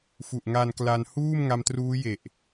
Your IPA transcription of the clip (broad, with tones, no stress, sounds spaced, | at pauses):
f u˨˩ ʔ ŋ a˧ n k l a˧ n h uː˥˩ m ŋ a˧ m t r uː˦˥ j e˨˩ ʔ